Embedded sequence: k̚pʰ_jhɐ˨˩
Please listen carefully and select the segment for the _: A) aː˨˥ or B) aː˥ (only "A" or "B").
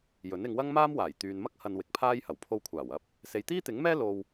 B